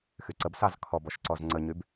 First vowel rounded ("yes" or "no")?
yes